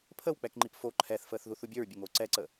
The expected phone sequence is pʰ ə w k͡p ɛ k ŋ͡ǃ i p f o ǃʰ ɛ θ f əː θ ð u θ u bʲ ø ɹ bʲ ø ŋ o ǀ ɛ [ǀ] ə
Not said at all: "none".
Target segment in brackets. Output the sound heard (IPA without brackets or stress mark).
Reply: ǀ